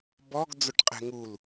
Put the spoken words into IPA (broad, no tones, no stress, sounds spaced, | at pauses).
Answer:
b ɔ ɡ d͡z o ʈ qʼ ɛ̤ ŋ u l